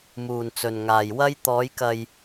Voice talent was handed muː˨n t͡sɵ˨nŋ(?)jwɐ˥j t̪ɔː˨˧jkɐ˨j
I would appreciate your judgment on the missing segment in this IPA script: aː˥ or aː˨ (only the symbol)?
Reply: aː˨